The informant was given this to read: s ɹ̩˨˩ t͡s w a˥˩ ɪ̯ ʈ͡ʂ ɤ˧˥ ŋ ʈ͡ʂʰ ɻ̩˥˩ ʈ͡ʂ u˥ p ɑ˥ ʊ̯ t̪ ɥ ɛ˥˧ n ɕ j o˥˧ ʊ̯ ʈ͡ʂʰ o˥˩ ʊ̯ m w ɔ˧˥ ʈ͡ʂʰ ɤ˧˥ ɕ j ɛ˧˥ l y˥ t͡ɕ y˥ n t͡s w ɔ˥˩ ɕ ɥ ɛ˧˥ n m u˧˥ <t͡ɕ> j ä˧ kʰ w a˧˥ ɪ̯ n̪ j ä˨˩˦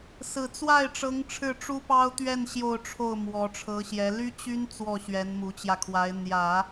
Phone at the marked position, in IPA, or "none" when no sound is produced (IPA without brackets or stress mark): t͡ɕ